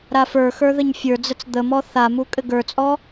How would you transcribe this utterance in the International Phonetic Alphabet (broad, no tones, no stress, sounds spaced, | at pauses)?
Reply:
ɾ a f ə˞ x ə˞ ð ə ɲ fʲ ə˞ d͡z ə t͡s d̪ ə m ɔ θ a m u kʼ ɘ ɡ ə˞ t͡sʼ ɔ